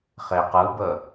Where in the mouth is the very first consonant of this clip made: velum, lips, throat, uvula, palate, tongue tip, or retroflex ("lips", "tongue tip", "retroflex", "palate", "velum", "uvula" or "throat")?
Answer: uvula